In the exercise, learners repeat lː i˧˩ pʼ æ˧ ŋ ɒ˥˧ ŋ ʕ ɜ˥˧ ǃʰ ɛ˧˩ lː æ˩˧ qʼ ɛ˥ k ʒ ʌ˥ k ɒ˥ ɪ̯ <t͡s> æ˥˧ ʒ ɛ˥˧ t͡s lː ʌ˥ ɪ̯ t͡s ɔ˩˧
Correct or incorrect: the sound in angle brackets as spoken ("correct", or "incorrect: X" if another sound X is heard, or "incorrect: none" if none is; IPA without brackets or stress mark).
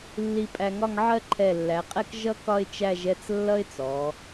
incorrect: t͡ʃ